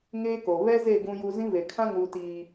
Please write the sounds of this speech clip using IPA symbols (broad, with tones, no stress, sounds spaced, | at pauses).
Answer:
ŋ eː˦ k o˨ β ɛ˦ z e˦˨ ɡ ũ˦ j u˦ z ĩ˦ v e˨ kʰ ã˦ ŋ uː˨ t iː˨